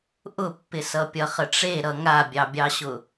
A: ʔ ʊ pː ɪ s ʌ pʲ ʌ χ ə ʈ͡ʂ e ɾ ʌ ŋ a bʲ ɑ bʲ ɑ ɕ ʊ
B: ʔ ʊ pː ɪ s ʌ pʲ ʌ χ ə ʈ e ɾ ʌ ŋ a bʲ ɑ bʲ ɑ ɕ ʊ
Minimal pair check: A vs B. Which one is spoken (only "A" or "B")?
A